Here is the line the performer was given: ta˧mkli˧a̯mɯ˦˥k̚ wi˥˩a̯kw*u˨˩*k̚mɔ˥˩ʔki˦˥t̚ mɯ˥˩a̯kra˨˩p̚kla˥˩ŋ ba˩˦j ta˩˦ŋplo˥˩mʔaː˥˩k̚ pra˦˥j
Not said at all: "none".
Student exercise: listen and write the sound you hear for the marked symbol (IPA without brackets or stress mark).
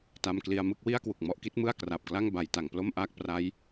u˨˩